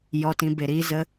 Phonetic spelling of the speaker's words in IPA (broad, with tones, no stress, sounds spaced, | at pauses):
j ɔ˨ t ĩ˨ b e˨ ɾ iː˦ z ə˦